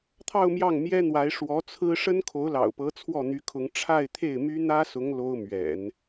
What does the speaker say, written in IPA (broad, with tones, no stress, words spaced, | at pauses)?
t̪ʰɑ˥˧ʊ̯ mjɑ˥˩ŋmjɛ˥n̪wa˧˥ɪ̯ ʂwɔ˧˥t͡sʰɹ̩˥ ʂə˥nkʰo˧˥ʊ̯lɑ̰˨˩ʊ̯pɤ˧˥ t͡sʰwɔ˥˩n̪y˧˥kʰʊ˧˥ŋ ʈ͡ʂʰa˥˧ɪ̯t̪ʰe˥˩ɪ̯my˥ n̪ä˥sʊ˧˥ŋ lo˥ʊ̯mɥɛ̰˨˩˦n